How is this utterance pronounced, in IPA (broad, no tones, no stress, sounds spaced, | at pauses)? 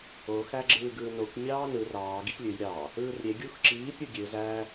o x æ ɡ͡ǁ ɯː ɡ ɯː n o kʷ mʲ ɑː n ɯ r ɑː ɡ i x lʲ ø j ɾʲ ɑ | ɯː r ɾʲ e ɡʲ u x ǁ iː pʲ u ɡʲ ø z æ